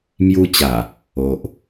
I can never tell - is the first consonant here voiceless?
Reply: no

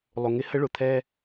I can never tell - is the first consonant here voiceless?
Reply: no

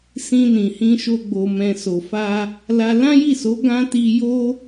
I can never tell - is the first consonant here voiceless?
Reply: yes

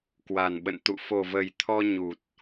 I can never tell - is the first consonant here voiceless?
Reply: yes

